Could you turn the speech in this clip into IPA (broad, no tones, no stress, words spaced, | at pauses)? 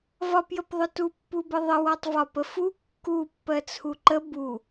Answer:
vɒpjəpðˤʊtu pːubəðˤə wɔtˤvɒpəfu kːu pːɜt͡sʰuǃə bu